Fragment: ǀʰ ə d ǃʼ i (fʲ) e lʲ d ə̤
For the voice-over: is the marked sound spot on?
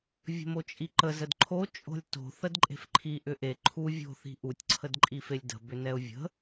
no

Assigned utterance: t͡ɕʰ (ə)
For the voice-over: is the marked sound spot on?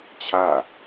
no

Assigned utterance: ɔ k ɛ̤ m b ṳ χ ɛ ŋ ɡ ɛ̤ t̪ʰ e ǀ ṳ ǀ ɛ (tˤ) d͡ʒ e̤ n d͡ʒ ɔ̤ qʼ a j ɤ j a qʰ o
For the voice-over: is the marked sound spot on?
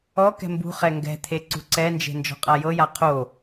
no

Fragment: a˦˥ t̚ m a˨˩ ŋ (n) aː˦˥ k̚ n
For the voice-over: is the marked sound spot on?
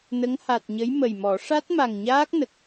no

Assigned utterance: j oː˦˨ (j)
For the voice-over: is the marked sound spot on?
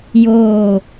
no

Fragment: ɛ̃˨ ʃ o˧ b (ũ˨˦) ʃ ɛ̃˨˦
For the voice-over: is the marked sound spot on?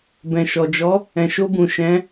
no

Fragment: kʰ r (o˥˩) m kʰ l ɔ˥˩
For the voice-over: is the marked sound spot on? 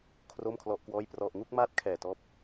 yes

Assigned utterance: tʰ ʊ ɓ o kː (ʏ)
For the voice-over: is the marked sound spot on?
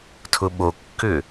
yes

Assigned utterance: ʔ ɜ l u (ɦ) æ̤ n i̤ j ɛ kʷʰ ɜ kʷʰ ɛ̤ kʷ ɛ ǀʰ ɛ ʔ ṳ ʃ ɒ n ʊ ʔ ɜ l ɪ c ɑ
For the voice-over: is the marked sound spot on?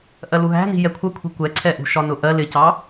yes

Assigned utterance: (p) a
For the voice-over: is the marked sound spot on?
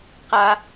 no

